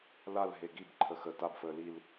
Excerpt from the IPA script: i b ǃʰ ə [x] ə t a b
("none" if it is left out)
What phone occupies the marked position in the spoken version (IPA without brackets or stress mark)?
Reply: x